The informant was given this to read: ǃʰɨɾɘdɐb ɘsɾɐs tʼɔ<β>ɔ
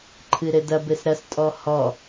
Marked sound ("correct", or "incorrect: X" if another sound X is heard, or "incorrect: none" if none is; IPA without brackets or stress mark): incorrect: h